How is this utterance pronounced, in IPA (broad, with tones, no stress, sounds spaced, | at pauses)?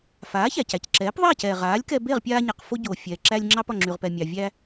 f aː˩˥ ç æ˩ c æ˩ c ǁ ɛː˩˥ p ðˤ ɛː˥˩ c ɛː˩ ʁ aː˩˥ lʲ k ɛ˧ b e˥˩ ʁ pʲ aː˧ ɲ a˩ q f o˧ ɟ oː˩ fʲ ɛː˩ ǁ æ˧ lʲ ŋ͡ǁ ɑ˧ p ɒ˩ ŋ͡ǁ y˩ ʁ p ɛ˩ mʲ ɑ˩ vʲ æ˧